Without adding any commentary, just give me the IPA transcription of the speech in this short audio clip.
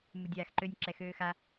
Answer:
mudʲaːxǃønʲ ǁɛxøːxa

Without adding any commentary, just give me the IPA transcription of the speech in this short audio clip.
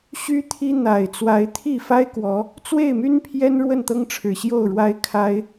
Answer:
ɕy˦t̪ʰi˦ n̪a˨˩ɪ̯ t͡swa˨˦ɪ̯t̪ʰi˥˨ fa˦ɪ̯kwɔ˨˦ | t͡swe˥˨ɪ̯my˦npʰjɛ˦n ɻwə˥˨nt̪ɤ˦ŋʈ͡ʂʰɻ̩˨˩ɕjo˥˨ʊ̯ ɻwa˦ɪ̯kʰa˦ɪ̯

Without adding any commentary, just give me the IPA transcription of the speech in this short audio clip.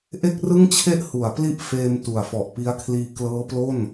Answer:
ʔe˥˩k̚rɯ˥˩ŋt͡ɕʰe˥˩ʔ hu˩˦a̯pli˥˩ʔ feː˧m tu˨˩a̯fɔ˨˩ʔpi˦˥a̯kʰliː˧ klɤː˦˥plo˥˩n

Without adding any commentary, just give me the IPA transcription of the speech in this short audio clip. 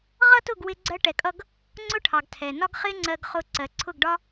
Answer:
ʁʌ˦tʊ˦˨ɡwɪ˧ ɡ͡ǀɜ˧ʈɛ˨kʼʌ˧ɡ | ŋ͡ǀʊ˦ʈʰɑ˨ɡ tʰɛ˨nɒ˦ɡχɪ˦ ŋ͡ǀɜ˧ɡχʊ˧ ǀɜ˨ǀʰʊ˦˨ɡɖɒ˦

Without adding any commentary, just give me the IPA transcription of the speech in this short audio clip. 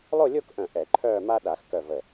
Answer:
lˠo˥˧lʲo˥˧kʔœ̃˧˩ ʔɛ˨˩˦ ǃʰœː˥˧ma˥ ɗa˨˩˦xkœ˧˩ və˧˩

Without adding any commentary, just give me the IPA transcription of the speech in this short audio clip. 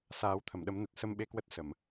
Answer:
saː˨˦wt̪ʰə˧˩mɗə˨˦mnə˨˩t̚ sə˧mɓe˧kwə˦˥t̚ sə˧˩˨m

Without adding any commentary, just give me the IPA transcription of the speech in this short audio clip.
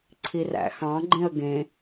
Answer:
ǀʰiræ̰xɑ̃ɡ͡ǃẽə̯ ɡẽ

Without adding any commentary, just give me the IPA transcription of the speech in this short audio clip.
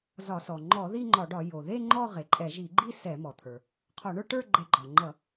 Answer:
zɒ˧˩˧sɔ˩ ŋ͡ǃɔ˧˩˧ ði˥˧ŋ͡ǃɒ˧˩˧ɖɒ˧˩˧ jo˩ðe˥˧ ŋ͡ǃɔ˥˧ʁe˩ǃʼɛ˧˩˧ ʒi˧˩˧ɡ͡ǃi˥˧ sɛ˧˩˧mɔ˩t̪ʰə˞˩ | qʰɔ˧˩˧ɳə˞˥˧ʈə˞˥˧ ɡ͡ǃɛ˧˩˧ɡ͡ǃɒ˩ŋ͡ǃʌ˧˩˧

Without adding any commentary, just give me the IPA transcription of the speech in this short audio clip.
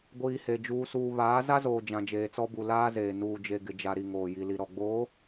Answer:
ɡʷiː˨he˨ d͡ʒuː˨suː˨ βaː˨˦ za˦zoː˨ d͡ʒã˨d͡ʒeː˨t͡sɔ˦bu˨ laː˦zeː˨ nuː˨d͡ʒe˨ɡɪ˨d͡ʒa˨ ɾi˨ŋoː˨ji˨li˨ ɾɔ˨ɡ͡boː˨˦

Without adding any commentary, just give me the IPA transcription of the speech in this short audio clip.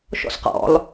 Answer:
ʃɔ̰sqɔ̰lˠ

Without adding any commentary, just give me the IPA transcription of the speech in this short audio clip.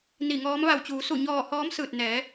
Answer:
ni˧˩ŋɔː˧˥m ʋa˧˩wt͡ɕuː˩˧su˧˩ɲɔː˧˩ hɔː˧˥msɯː˧˩t̚ nɛː˩˧

